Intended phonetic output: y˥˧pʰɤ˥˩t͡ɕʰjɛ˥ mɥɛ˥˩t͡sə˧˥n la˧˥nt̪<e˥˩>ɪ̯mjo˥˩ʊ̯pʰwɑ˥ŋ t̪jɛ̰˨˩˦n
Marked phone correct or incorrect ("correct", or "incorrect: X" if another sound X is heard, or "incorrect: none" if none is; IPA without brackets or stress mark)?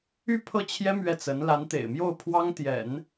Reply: incorrect: ḛ˨˩